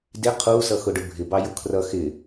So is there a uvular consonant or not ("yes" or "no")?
yes